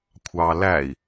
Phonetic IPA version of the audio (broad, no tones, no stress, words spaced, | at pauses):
kʷʰɑːlæi̯